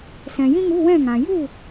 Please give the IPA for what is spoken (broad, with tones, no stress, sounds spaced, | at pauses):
s ɛ̃˨ j ĩ˥ ŋ u˧˥˧ w ɛ̃˥˨ ŋ ã˨ j u˥˨